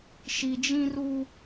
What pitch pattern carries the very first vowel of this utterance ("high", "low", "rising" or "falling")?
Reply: low